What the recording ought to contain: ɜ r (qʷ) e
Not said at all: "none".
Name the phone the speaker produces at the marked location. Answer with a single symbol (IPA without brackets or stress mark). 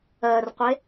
qʷ